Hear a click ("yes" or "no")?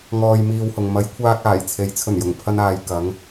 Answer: no